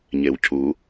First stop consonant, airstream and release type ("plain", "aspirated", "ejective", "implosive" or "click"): aspirated